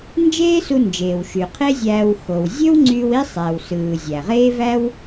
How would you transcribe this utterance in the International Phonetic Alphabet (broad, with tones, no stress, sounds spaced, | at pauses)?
n d͡ʒ eː˥ s u˧ n d͡ʒ eː˩ w ʃ y˩ qʰ e˥ zʲ æː˧ w x o˩ w zʲ ø˥ w ŋ͡ǀ y˧ w i˥ sˤ æ˩ w s ɯː˩ zʲ æ˩ ʁ eː˥ v æ˥ w